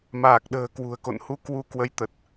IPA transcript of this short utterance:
m aː˨˩ k̚ ɗ ə̤ː˨˩ k w ṳ˨˩ ə̯ k o̰˧˨ n h u˧ k w u˧ k w ə˨˦ j t̪ ə˨˩ t̚

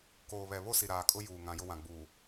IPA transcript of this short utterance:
k oː˨ β ɛ˨ β o˦ s i˨ ɾ aː˨ kʼ ʊ˦ j uː˨ ŋ ã˨ j ʊ˦ w ã˨ ɡ͡b uː˨

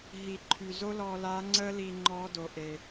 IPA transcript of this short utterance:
ɦ i˩ ǃʰ y˩ z o˥ l ɔː˧ l aː˧˥ ŋ͡ǀ əː˥ l iː˧ ŋ͡ǃ ɔː˧˥ d o˩ ʔ e˩

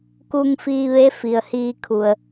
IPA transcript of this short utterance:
k u˧ ŋ f iː˧ ʋ e˧˥ f i˩ ə̯ h iː˧ kʰ u˩ ə̯

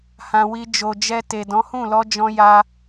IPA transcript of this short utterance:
h ã˧ w i˧ d͡ʒ o˨ d͡ʒ ɛ˧ t e˨ d ɔ̃˨˦ h ũ˦˨ l ɔ˧ d͡ʒ ɔ̃˧ j a˧

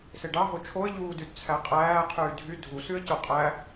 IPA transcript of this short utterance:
s e ɖ ɑ ɦ o t͡ʃʰ o ə̯ ʎ uː d y d t͡sʰ æ qʼ æː qʰ yː dʱ y dʱ u s y ə̯ c o qʼ æ

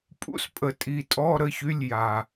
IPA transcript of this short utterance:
pʼ ṵ˧˥˧ s pʼ ə˨ tʼ i˨ tʼ ɔ˧˥˧ ɾ ə˧˥˧ ç y˧˥˧ lʲ j a˨

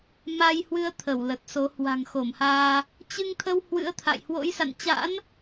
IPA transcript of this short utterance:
m a˧ j h w ɨ˧ ə̯ t̪ʰ ə˧˩ w l ə˨˩ t̚ s o˨˦ h w a̤˨˩ ŋ x o˧˩ m h aː˧ | t͡ɕ ɨ˧ ŋ t̪ʰ ə˧ w h w ɨ̰˧˥ ə̯ t̪ʰ a̰˧˨ j h w o̰˧˥ j s a̰˧˨ n t͡ɕ a̰˧˥ n

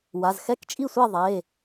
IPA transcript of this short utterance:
w a˩˧˩ z x ɛ˥˩ k t͡ʃʼ i˥˩ sʷ ɛ˥˩ ðˤ e˩˧˩

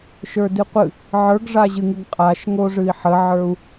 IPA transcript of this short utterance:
ʃ ə˞ d ɨ qʷ ɨ | ʕ ə˞ ɡ ʐ a ʑ ɨ ŋ ɨ ɡ qʼ a ʃ ŋ o ʐ ɨ i̯ ħ ə ʕ ə˞ u̯

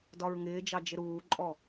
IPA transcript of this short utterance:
d ɒ ɹ ŋ ɪː d͡ʒ ɑ d͡ʒ ɪ ɾ uː ǃʼ ɔ

